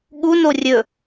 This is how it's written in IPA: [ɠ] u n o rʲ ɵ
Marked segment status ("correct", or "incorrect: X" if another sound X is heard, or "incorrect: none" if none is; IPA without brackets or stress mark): correct